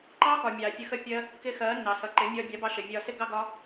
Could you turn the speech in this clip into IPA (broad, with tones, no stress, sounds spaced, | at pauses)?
ǃ ɑː˦ k ɒ˨ mʲ ɑː˨ fʲ ə˧ x ə˦ pʲ ɜ˦ | k ɪ˦ x ɜː˨˦ nː ɑ˨ s ʌ˨ ǃ ɪ˨˦ mʲ ɒː˧ bʲ ɑ˨˦ b ɑ˧ ʃ ə˨ vʲ ɒː˧ s ɪ˦ ɡ ɑ˦ ɡ ɒ˦